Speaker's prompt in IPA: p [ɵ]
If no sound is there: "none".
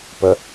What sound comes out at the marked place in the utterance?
ə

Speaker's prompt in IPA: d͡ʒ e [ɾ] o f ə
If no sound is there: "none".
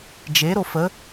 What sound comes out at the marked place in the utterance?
ɾ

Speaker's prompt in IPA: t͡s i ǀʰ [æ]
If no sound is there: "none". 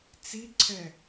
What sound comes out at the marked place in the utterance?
ɛ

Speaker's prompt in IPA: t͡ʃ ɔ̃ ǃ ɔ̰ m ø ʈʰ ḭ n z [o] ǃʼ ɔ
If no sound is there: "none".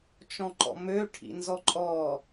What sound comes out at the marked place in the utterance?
ɔ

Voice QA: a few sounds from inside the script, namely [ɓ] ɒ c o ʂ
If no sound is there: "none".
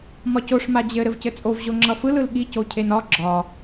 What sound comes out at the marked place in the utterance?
m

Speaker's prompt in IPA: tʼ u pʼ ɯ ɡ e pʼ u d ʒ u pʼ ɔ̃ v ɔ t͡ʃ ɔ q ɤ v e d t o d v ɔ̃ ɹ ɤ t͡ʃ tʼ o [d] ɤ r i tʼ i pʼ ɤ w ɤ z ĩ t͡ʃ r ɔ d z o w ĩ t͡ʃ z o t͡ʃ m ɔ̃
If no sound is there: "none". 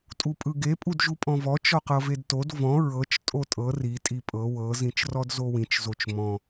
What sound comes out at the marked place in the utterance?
tʼ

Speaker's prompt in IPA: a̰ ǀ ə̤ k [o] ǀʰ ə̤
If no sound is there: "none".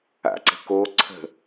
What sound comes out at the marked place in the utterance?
o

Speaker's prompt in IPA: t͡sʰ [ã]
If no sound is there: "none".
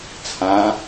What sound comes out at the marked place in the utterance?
ã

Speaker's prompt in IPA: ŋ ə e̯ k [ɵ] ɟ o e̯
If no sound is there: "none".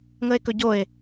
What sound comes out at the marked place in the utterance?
ɵ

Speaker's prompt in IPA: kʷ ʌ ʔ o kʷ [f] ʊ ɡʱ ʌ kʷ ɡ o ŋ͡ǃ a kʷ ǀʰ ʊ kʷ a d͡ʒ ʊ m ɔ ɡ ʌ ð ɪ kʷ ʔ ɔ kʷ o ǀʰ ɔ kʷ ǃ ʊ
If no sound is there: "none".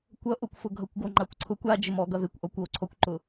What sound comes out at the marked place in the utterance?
f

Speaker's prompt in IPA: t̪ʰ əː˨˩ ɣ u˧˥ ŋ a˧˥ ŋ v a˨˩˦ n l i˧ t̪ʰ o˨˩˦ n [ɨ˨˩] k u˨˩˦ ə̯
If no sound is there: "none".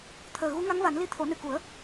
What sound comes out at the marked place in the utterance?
ɨ˨˩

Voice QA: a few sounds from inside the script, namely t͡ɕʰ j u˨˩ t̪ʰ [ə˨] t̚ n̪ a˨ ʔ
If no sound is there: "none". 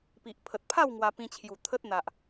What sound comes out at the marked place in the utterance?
ə˦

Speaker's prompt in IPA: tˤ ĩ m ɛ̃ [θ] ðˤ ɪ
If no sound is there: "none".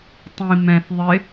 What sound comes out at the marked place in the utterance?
θ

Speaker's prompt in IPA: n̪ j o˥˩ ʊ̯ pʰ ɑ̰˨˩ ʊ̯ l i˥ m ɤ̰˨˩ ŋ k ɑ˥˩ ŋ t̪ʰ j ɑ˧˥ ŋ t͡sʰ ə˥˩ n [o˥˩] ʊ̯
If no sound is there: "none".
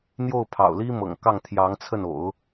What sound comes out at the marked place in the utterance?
o̰˨˩˦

